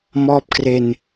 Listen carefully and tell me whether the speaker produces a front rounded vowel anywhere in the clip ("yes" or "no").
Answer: no